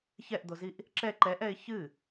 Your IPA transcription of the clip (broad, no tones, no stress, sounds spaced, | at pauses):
ç ɛ ʔ d̪ o z i ʔ | ǁ ɛ ǃ ɛ ʔ ɛ ɪ̯ ç ɨ